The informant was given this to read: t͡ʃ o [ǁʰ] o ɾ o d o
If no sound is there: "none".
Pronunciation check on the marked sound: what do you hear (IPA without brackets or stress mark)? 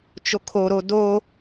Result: kʰ